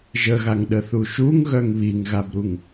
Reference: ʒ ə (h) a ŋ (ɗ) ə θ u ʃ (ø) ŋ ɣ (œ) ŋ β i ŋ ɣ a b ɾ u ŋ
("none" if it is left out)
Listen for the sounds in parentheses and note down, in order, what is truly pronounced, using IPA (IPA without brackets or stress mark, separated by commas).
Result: ɣ, ɗ, u, œ